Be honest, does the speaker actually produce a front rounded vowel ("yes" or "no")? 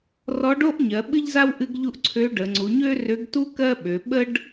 yes